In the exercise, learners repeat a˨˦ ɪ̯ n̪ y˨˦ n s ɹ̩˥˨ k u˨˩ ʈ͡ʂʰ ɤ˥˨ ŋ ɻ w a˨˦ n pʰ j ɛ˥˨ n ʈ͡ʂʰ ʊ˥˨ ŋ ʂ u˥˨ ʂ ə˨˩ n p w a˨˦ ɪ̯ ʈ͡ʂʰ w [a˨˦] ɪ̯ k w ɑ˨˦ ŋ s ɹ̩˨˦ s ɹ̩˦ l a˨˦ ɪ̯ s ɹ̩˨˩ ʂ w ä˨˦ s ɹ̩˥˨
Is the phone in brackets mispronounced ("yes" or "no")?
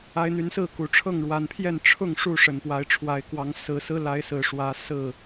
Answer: no